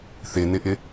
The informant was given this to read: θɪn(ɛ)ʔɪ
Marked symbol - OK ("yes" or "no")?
no